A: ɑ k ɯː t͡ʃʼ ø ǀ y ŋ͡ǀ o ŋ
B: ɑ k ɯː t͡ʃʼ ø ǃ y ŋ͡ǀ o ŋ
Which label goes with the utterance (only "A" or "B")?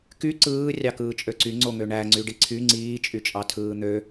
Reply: A